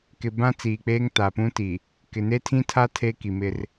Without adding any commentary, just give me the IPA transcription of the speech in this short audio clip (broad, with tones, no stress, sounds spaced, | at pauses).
k ɪ˨ b ã˦ t͡s iː˨ k͡p eː˦ ŋ t a˨ p ũ˦ t i˨ | k ɪ˨ n e˦ tʰ ĩ˦ tʰ a˦ tʰ eː˦ k i˨ m ɪ˦ r